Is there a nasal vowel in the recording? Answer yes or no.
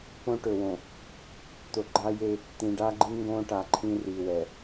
yes